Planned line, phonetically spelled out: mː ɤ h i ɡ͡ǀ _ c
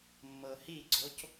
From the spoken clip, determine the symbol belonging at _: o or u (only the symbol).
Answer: o